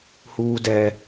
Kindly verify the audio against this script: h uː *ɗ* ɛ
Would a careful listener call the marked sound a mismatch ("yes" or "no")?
yes